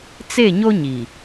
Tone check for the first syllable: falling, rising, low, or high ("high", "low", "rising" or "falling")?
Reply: falling